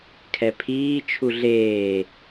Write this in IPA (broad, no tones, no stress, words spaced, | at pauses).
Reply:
kʰɛpʰiː t͡ʃʰuɮeː